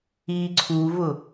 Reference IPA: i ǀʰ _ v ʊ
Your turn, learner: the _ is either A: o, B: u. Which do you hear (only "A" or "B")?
B